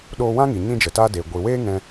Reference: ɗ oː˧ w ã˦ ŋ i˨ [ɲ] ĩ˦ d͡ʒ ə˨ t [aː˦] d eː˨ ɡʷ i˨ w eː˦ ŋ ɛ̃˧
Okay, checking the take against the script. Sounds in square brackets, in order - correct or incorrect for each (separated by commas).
correct, correct